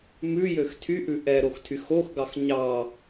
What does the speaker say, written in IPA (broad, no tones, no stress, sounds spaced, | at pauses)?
m ʉ j ø x tʰ y ʔ ʉ ʔ ɛ ɾ o x tʰ y x o x ɡ ɑ x ɲ ɑ